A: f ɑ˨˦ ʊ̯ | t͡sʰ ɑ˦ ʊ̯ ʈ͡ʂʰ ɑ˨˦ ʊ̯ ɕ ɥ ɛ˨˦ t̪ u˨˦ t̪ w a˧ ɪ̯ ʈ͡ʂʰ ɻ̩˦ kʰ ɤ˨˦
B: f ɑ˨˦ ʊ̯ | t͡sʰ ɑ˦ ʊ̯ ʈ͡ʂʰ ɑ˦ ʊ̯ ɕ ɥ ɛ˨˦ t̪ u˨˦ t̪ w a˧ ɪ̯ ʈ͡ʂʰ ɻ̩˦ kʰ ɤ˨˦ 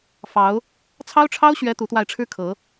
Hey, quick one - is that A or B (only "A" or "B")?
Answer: B